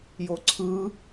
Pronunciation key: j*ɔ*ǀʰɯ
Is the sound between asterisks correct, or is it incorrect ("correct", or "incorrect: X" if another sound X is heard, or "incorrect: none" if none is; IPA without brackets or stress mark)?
incorrect: o